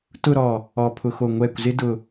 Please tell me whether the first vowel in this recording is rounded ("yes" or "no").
yes